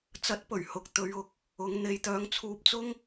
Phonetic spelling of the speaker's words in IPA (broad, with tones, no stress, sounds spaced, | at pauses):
t͡s ɐ˨˥ t̚ p ɵ˨˩ ɥ h ʊ˨˥ k̚ t̪ ɵ˨˧ ɥ ʊ˨˥ k̚ | ʊ˨˧ ŋ n̪ e˨˧ j t̪ œː˨˧ ŋ t͡sʰ uː˧ p̚ t͡s ʊ˥ ŋ